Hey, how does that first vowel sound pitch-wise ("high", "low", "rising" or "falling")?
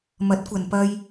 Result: rising